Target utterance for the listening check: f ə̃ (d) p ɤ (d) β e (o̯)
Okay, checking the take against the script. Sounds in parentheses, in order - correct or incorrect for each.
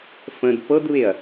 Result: correct, correct, incorrect

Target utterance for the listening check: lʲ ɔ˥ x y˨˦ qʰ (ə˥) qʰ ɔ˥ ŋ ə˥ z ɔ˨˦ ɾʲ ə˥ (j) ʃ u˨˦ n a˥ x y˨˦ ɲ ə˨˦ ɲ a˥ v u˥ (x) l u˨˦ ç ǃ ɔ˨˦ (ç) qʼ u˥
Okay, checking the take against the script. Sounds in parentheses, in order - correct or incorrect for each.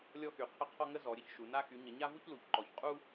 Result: correct, incorrect, incorrect, correct

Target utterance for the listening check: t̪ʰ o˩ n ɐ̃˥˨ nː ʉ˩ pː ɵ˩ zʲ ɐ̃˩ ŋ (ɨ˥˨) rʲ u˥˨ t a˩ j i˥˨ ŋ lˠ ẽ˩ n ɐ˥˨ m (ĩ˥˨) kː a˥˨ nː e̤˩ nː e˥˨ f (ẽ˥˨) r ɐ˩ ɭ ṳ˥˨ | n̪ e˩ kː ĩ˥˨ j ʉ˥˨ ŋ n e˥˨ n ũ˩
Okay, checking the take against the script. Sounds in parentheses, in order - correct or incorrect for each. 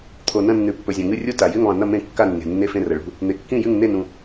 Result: correct, incorrect, correct

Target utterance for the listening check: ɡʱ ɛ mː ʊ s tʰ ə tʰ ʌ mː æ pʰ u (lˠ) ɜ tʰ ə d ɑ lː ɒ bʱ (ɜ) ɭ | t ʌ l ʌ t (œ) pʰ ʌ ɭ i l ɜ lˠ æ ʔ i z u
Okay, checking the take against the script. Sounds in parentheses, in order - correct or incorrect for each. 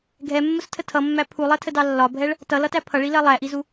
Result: correct, incorrect, incorrect

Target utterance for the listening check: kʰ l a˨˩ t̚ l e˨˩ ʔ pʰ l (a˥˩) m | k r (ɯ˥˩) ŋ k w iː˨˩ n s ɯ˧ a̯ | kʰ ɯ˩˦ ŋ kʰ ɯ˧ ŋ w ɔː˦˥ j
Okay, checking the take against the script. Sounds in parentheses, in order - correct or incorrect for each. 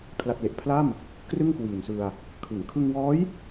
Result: correct, correct

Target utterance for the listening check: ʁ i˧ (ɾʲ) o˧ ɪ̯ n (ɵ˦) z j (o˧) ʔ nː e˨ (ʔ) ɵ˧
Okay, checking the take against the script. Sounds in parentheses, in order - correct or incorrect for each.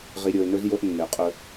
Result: correct, correct, correct, incorrect

